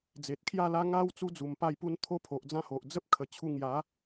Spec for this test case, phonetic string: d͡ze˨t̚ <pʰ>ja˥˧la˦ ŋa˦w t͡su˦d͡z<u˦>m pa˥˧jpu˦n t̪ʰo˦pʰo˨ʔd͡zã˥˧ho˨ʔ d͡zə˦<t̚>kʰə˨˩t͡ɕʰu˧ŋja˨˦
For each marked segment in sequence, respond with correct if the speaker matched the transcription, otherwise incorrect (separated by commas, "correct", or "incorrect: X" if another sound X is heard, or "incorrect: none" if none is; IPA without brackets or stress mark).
incorrect: kʰ, incorrect: u˨˩, incorrect: p̚